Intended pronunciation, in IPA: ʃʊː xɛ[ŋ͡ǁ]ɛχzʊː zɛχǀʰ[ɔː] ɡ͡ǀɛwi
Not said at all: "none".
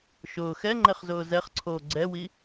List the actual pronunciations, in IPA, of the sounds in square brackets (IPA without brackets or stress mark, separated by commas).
ŋ͡ǃ, oː